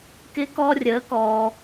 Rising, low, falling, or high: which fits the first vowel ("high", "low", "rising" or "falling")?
rising